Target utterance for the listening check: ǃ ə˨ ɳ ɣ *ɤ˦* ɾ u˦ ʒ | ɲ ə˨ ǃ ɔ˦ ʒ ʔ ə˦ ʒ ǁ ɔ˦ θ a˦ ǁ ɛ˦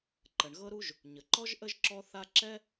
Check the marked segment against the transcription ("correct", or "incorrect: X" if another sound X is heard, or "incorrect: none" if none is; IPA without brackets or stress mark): correct